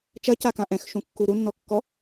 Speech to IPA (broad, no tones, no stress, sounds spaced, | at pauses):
t͡ʃ ɐ c a k ã ʔ ɛ̃ x ʃ ũ kː u ɾ u nː ɔ kː ɔ